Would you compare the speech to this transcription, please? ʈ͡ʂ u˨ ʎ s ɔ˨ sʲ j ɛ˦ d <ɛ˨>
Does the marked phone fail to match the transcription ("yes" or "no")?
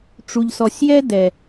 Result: no